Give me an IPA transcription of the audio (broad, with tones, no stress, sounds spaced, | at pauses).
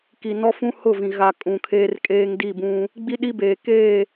k i˨ n ɔ˦ f ũ˦ h ʊ˦˨ v ĩ˨ ɣ a˨ kʼ ũ˨ kʰ eː˦ r kʼ eː˦ ŋ d i˦˨ b ũ˦ | ɡ͡b i˦ ɗ i˦ b eː˨ k eː˦˨